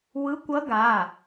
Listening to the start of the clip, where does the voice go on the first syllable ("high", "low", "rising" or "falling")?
rising